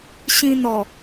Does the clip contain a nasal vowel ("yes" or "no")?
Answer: yes